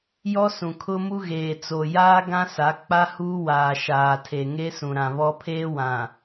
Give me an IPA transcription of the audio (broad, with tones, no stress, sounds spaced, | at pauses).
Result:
j ɔ˦ s ũ˨ kʰ ʊ˦ m u˦ ɣ eː˨ t͡s o˨ j aː˦ ɡ ã˦ s a˨˦ k͡p a˦ h uː˦ w aː˨ ʃ aː˨ tʰ e˨ ŋ e˦ s ũ˨ ɾ ã˨ β ɔ˦ pʰ eː˦ w ã˨